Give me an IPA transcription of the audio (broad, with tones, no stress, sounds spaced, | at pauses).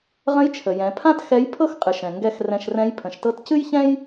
ʁ ə̃˧˥ j t͡ʃʰ ə˩ j ɛ̃˩˧ pʰ ã˥ t x ɛ˧˥ j pʰ ɤ˥ x qʼ ɨ˩˧ ʃ ɛ̃˩ ŋ ɡ ɛ˧ x r ɛ̃˧ ʃ r ɛ̃˧˥ j pʰ ə̃˩˧ ʃ t ɤ˧˥ t c ɨ˥ j ç ɛ̃˥ j